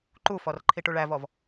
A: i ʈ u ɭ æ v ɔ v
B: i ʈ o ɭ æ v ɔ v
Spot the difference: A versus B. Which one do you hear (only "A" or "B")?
A